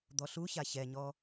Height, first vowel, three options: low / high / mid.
mid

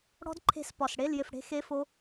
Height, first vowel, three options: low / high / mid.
mid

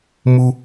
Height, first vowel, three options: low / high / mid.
high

